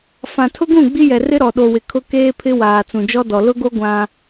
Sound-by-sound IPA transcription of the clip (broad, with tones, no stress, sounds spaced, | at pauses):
f ã˨ tʰ ʊ˦ ɡ ũ˦˨ ɡ͡b i˦ j ɛ˨ r ɪ˦ ɾ ɔ˨ ɗ o˨ w ɪ˨ kʰ ʊ˦ k eː˦ pʰ ɪ˦ w aː˨ t͡s ũ˨ d͡ʒ ɔ˦ d ɔ˨ l ʊ˦ ɡ o˦ ɡʷ ã˦